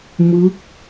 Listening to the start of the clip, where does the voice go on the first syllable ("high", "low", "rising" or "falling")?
rising